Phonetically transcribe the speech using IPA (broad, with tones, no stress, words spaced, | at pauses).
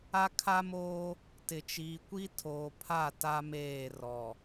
a˦kʰa˦moː˦ | tɪ˨ t͡ʃiː˨kʷi˦tʰoː˨pʰa˦˨ ta˦meː˦˨rɔ˨